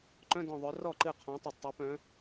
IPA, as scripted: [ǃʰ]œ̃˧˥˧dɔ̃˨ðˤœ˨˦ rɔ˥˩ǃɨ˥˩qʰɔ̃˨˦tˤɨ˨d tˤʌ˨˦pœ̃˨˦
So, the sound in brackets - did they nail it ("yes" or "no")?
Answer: no